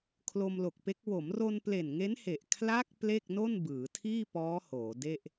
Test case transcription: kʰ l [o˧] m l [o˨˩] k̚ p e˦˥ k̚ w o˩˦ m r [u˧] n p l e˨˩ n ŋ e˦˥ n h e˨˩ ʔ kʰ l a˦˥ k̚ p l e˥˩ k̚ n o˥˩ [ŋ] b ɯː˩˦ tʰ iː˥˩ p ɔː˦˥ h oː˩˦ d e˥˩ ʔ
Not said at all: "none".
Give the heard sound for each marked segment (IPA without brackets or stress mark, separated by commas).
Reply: o˧, o˨˩, o˧, n